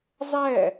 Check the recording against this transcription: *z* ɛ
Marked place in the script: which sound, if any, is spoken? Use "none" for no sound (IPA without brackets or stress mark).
zˤ